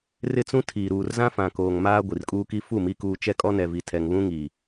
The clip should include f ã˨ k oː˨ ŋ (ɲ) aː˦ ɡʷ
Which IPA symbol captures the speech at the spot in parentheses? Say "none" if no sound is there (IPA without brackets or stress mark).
m